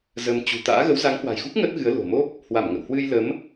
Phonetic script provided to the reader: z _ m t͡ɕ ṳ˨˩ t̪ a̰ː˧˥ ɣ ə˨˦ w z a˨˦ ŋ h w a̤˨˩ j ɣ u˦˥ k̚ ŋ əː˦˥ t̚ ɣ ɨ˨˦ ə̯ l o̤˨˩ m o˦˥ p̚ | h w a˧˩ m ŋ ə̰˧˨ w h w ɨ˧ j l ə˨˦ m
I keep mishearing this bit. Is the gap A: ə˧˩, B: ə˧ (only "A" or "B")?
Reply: B